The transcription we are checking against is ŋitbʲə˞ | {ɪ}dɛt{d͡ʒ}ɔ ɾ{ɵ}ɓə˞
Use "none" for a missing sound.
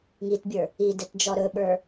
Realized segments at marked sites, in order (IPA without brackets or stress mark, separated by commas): i, d͡ʒ, ɵ